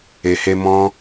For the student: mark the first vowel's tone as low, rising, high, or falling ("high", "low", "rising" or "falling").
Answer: low